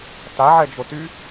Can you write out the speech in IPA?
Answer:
t a ʕ ɛ d͡ʒ o t y

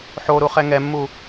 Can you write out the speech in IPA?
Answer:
ħ o ɾ u χ ɛ ŋ ɛ mː u

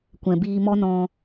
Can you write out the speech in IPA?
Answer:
kʷ ɛ̃˨ b iː˧ m ɔ˦ n ɔ̃˧

